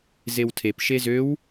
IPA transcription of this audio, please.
z e w tʰ e p ʃ e z ø w

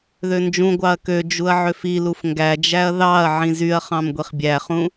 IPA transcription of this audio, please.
ð ø n d͡ʒ ũ ɡʷ ɑ ɐ̯ k ø d͡ʒ u ɐ̯ ʕ ø f i l u f ŋ ɡ æ d͡ʒ æ ɐ̯ ð ɑ ɐ̯ ʕ ĩ z y ɐ̯ χ ɑ̃ m ɡʷ i χ bʲ æ χ ũ

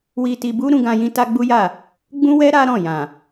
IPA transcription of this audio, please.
w i˧ t i˧ b u˦ ɾ ũ˧ ɡ ã˧ j ĩ˧ t a˦ ɡ͡b u˦ j a˦˨ | ɡ͡b ũ˦ w ɛ˦ ɾ a˦ ɾ ɔ̃˦˨ j ã˨

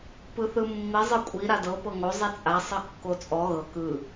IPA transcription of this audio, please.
p ɯ θ ɯ mː i zˤ ɯ kʷʼ i ɾ a d ɤ p ɤ ŋ o zˤ i t͡sʼ a sˤ ɤ kː o t͡sʼ ɔ ɣ ɤ k ɯ

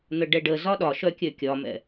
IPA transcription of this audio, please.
n̪ ə ɖ ɛ ɖ ə z ɒ ɗ ɒ ʃ œ kʲ œ kʲ ɒ m ɛ̰

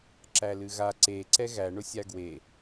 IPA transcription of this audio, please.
ǁ æ l ɨ ɣ a ǀ e ǀ ɛ ɣ æ ɳ ʊ sʲ a ɡ w e

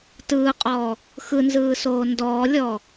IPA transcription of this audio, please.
t ɯː qʼ ɔː | x ɯ n z ɯː s oː n d ɔː lʲ ɔː

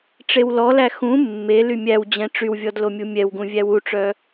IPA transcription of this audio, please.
ʈ͡ʂ e w l ɔ l æ x ũ mː e l y mʲ æ w d͡ʑ ɛ̃ ʈ͡ʂ y w vʲ ɔ d l o mʲ u mʲ ɛ w ɡ ũ vʲ æ w u ʈ͡ʂ œ

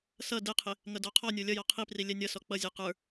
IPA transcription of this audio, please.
s ʌ d ɛ qʰ ɪ | ŋ ʌ d ɔ qʰ ɔ nʲ ə˞ lʲ ʌ j ɔ qʰ i p r i lʲ ɛ nʲ ʌ s ɔ k͡p ʌ zʲ ə˞ q ə˞

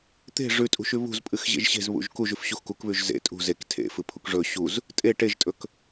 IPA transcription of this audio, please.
t̪ e̤ ʐ ʉ tʼ ṳ ʃ ʉ β ṳ z pʼ ɨ x ʑ ḛ ʒ ɕ e̤ z β ṵ ʒ k u ʒ ʉ f ɕ u x k u k β ʉ ʒ z ḛ tʼ ṳ z e k tʰ ḛ f ɨ pʰ ṵ k ʐ ɵ ɕ u z | tʼ e ʈ e ʒ tʼ ɵ k

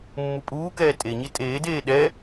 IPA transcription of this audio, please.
mː u pʼ uː k ɛː tʼ e ɲ ɪ tʼ eː d eː ɗ ɛ

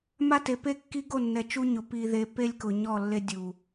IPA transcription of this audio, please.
m a˦ t e˨ p e˦ kː i˦ ɡ o˦˨ nː ɛ˨ t͡ʃ u˦ ɲ ʊ˨ p i˨ ð e˨ p e˦ lʲ k ʊ˨ ɲ ɔ˦˨ lː e˦ dʲ u˨

